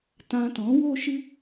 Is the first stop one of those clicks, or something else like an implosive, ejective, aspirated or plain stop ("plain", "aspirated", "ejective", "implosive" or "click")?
plain